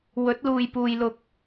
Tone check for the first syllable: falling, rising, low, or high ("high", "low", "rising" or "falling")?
rising